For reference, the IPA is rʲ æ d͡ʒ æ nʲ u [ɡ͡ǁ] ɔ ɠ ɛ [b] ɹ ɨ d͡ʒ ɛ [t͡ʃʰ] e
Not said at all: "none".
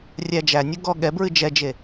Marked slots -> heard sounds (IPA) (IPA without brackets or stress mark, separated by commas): ɡ, b, d͡ʒ